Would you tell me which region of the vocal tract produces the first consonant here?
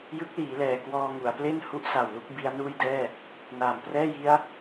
palate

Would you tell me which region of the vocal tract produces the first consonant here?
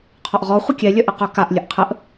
uvula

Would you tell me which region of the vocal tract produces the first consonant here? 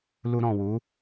tongue tip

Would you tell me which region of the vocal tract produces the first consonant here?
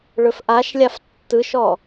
retroflex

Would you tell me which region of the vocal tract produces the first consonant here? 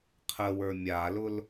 uvula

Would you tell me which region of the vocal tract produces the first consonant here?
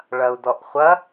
retroflex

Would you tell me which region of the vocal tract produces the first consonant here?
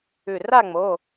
tongue tip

